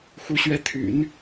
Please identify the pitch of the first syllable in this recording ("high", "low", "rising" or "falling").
rising